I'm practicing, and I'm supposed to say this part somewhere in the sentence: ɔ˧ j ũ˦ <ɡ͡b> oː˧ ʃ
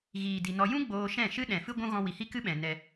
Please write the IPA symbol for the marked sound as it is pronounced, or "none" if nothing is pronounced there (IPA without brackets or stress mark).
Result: ɡ͡b